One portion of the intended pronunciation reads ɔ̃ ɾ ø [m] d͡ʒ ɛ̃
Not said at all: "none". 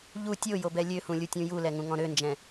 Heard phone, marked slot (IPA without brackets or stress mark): n